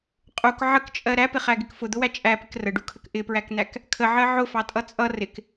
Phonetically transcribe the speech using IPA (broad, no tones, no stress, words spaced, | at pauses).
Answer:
qʼuk ʕəkt͡ʃʼɜ ɾæpɪχæɡɪk fʊd̪ʊwæ t͡ʃʼæpɪk rəɖukʰək ʔɪpɹækn̪æk | kʰəʕɜ ʕʊfɑtʼʌ t͡sʼʌ rɪk